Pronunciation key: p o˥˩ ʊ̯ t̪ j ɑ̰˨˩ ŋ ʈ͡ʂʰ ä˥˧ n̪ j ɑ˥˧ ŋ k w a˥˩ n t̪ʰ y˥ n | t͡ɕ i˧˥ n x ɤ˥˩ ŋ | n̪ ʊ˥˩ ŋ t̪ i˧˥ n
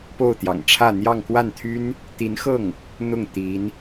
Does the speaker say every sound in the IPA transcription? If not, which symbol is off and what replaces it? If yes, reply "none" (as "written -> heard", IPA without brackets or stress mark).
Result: t͡ɕ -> t̪